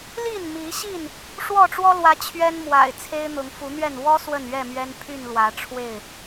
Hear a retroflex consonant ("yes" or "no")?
yes